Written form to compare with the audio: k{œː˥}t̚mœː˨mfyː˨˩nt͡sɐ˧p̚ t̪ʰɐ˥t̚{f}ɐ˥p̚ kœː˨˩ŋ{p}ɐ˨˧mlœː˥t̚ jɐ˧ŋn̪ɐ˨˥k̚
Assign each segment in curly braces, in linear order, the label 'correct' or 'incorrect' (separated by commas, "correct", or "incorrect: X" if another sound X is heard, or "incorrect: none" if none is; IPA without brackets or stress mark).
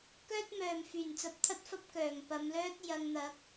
correct, correct, correct